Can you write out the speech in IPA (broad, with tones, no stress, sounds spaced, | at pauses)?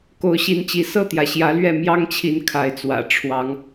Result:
k o˨˦ ʊ̯ ɕ i˨˦ n t͡ɕ i˨˦ s ɤ˥˨ t̪ j ä˩ ɕ j ä˨˦ l ɥ ɛ˥˨ m j ɑ˦ ŋ t͡ɕʰ i˨˦ n kʰ a˨˦ ɪ̯ t͡s w ä̰˨˩ ʈ͡ʂʰ w ɑ˨˦ ŋ